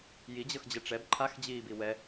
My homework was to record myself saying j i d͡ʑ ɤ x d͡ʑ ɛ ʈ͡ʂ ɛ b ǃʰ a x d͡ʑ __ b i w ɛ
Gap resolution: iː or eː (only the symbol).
iː